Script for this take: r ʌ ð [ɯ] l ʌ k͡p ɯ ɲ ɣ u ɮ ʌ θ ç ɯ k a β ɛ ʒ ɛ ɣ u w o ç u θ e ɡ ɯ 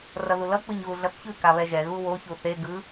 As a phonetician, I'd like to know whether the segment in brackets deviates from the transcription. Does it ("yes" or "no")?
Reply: yes